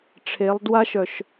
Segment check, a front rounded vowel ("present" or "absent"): present